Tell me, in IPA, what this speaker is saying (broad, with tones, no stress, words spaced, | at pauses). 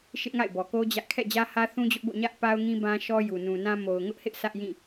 ʃɪ˦ʔŋa̰˦˨ɪ̯bɔ˨ko˦ d͡ʑä˦ʔ kʰɛ̰˦˨d͡ʑä˦hä˦ θũ˦d͡ʑʊ˦ʔbo̰˦˨ ɲä˦ʔpa˦ʊ̯ŋĩ˦ bã˦ʃɔ˦ju˨ nũ˨nã˦ mo˨ʊ̯ŋʊ˦ʔhɪ˦ʔ sʰä˦ʔjĩ˦˨